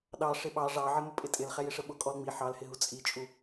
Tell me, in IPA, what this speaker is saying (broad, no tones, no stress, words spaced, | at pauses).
ɗɑ ʂɪɓɑ ʐɑʕɪ mʊpʼɪtʼɪl χɛjɪʂəɓʊ kʼɔlŋ͡mi ħɑlhɪɦu t͡sʼit͡ʃʼu